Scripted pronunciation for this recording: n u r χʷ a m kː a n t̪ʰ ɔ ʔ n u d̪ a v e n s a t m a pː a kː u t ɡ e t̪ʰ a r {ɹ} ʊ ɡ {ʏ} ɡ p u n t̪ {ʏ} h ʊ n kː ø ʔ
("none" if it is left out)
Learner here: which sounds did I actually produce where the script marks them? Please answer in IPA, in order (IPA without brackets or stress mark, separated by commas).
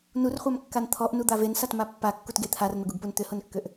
n̪, u, ʏ